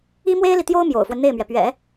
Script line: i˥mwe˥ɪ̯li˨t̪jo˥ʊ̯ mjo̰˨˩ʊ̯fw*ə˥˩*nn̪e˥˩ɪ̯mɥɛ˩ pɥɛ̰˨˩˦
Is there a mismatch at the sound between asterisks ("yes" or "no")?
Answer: yes